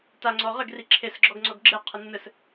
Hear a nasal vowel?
no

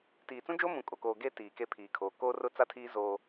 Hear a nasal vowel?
yes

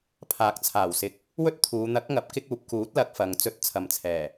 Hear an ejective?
no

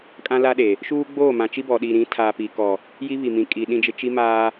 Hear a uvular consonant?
no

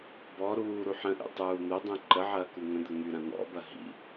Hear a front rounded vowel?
yes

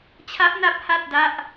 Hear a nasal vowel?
no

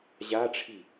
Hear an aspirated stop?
yes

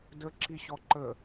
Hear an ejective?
no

